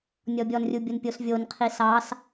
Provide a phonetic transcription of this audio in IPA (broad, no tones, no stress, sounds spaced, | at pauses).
nʲ ɔ bʲ ɔ n rʲ u bʲ o n pʲ o s vʲ o n qʰ i s ɑ s